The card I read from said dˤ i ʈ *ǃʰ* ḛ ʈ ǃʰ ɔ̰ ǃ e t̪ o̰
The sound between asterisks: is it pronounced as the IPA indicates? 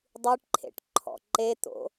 yes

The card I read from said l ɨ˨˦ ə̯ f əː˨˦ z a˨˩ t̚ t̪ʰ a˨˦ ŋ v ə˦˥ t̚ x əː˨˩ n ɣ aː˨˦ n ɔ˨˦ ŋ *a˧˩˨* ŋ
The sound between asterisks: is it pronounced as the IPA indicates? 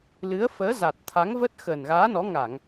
yes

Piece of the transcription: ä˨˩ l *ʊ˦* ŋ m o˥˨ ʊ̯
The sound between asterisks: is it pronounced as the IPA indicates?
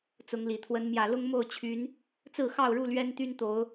yes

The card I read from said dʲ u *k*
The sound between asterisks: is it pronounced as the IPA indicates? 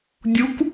yes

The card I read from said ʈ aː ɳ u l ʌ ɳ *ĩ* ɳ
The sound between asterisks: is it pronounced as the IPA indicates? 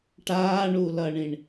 yes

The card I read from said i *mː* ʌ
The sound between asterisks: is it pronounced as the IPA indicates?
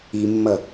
yes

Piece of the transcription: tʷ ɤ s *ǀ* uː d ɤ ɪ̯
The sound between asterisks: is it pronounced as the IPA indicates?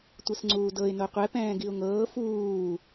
no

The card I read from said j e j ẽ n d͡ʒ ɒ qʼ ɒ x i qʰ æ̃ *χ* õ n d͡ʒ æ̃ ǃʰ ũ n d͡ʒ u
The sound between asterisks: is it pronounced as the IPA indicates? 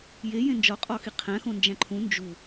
no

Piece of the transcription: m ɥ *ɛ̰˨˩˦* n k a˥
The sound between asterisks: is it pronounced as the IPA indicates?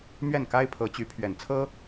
no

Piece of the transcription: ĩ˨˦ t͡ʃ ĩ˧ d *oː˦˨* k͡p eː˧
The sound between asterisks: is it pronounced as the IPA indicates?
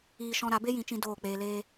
yes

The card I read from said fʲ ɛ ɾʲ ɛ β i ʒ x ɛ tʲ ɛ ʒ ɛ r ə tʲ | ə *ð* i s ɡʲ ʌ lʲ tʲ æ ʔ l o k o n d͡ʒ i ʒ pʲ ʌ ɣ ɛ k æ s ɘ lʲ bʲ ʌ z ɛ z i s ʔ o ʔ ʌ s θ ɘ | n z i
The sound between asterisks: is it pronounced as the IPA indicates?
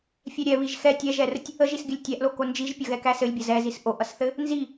no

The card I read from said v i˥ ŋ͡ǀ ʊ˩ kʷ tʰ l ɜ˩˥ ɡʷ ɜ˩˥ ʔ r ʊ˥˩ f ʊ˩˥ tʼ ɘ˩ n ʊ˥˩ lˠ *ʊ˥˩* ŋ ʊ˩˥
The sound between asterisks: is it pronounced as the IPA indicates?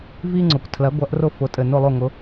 yes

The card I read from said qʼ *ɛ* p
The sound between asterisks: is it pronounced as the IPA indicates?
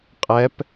yes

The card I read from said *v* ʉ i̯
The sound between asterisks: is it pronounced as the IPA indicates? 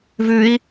yes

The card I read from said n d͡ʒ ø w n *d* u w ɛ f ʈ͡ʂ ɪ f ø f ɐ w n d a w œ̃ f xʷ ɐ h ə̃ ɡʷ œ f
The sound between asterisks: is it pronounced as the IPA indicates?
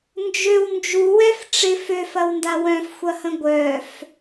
no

